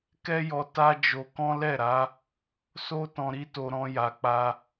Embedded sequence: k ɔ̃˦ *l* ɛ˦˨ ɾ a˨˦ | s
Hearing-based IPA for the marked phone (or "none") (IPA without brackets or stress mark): l